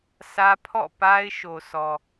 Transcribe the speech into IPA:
sä˦ pʰɔ̰˦˨pa˦ɪ̯ ʃo˨sʰɔ˨

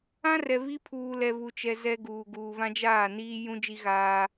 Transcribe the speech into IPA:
ã˦ rɛ˨βi˦ pʰuː˨lɛ˨ βu˨t͡ʃɛ˨ zɛ˦ɡuː˨ ɡuː˨βã˦d͡ʒaː˦˨niː˦ jũ˦ d͡ʒi˦ɣaː˦

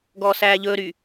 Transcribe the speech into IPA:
ɡɔːsæːʎɵːɾy

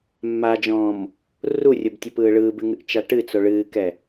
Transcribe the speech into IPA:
mːad͡ʒɔ̃ːm | rurʲobtʲəpɯː ɭɯːbɨŋɨʔt͡ʃa ʈɨt͡so ɭɨːkɛ

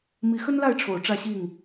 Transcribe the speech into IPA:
mi˨˦xə˦nla˥˨ɪ̯ʈ͡ʂʰo˨˩ʊ̯ ʈ͡ʂä˥˨ɕi˥˨ŋ

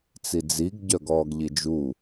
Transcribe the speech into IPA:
t͡sid͡ziɡ ɟœɡɔːɡʎid͡ʒu

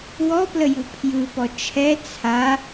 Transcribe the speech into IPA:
wɔpləju pʰjɯpɔ t͡ʃʰɛ t͡sʰa

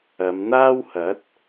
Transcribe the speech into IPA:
ɐ˨˧mn̪aː˥whɐ˨˥t̚

